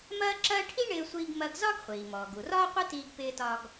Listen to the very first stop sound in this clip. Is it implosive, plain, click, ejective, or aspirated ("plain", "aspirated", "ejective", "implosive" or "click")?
click